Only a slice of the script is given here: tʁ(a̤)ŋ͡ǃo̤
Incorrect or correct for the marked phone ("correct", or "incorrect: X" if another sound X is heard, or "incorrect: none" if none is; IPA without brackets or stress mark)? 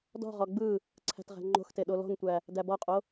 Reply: incorrect: æ̤